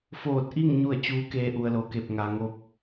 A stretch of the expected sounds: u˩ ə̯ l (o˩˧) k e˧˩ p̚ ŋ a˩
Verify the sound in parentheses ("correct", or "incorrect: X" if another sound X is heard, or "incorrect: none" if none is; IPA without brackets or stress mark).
correct